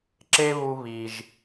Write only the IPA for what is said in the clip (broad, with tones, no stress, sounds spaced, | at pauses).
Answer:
ǁ e˦ β u˧ β i˨ ʒ